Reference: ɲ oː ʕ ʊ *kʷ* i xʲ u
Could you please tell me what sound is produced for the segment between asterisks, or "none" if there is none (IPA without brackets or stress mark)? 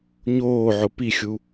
p